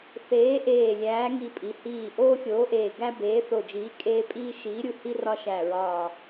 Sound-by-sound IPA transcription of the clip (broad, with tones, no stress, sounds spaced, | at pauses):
θ eː˨˥ ʔ eː˧˩ lʲ æː˨˥ ŋ i˦ pʼ i˨˥ h iː˧˩ ʔ oː˦ xʲ oː˨˥ ʔ eː˧˩ ɡ æ˦ b eː˨˥ θ o˧˩ d͡ʒ iː˨˥ kʼ eː˦ pʼ iː˦ ʃ iː˨˥ ɾʲ u˧˩ h i˦ r ɒ˦ ʃ æ˧˩ ɹ ɒː˧˩